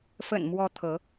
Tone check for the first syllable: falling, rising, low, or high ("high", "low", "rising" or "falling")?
low